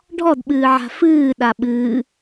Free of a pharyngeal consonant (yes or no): no